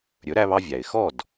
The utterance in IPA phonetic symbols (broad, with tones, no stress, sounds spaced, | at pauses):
ɾʲ ɵ˩˥ ɾ æ˧ β ɑ˧ vʲ æ˩ ɪ̯ x ɔ˥˩ d